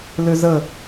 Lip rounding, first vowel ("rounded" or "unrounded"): rounded